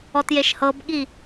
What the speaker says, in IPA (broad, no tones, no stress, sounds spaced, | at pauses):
ɔ t j e ʃ h ɤ b ɠ i